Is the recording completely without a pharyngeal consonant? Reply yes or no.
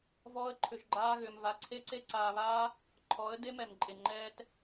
yes